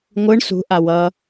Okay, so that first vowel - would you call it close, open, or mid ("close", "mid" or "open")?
close